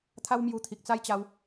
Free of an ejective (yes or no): yes